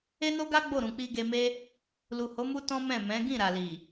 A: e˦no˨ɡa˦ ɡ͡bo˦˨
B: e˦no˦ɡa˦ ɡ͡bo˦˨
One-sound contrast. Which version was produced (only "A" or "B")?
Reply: B